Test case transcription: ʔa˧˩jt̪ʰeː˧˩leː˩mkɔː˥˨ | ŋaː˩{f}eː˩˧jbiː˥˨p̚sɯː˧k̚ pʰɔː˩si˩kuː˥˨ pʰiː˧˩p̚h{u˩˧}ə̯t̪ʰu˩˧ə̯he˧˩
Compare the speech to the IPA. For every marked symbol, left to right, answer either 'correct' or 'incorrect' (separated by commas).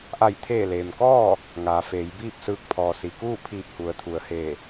correct, correct